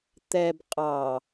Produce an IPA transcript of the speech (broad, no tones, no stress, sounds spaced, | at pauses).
t̪ ɛ b qʼ ɑ